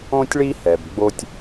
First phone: õ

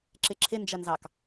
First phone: ǁ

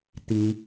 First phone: t̪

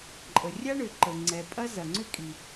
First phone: ǃʼ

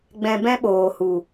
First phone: ɡ͡b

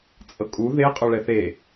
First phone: t͡sʼ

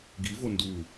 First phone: ɡ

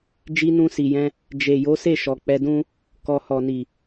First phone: d͡ʒ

